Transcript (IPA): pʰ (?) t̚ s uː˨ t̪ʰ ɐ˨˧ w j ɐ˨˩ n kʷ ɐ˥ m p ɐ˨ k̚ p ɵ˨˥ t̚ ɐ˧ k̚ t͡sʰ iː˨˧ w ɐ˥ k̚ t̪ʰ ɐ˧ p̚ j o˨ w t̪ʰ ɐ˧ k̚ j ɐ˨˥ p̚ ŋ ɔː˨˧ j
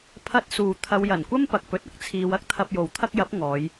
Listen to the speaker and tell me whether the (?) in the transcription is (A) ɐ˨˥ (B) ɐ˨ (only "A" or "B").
A